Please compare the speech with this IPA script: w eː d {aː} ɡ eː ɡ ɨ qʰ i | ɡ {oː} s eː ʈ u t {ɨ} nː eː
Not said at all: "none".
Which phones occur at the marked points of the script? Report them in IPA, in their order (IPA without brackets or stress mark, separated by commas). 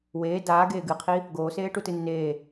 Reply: aː, oː, ɨ